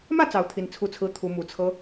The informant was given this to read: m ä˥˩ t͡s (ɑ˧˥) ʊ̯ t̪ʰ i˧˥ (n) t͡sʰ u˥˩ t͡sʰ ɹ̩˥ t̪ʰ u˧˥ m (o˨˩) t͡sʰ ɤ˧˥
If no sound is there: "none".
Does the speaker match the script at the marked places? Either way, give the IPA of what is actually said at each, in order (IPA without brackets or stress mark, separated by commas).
ɑ˧˥, n, u˨˩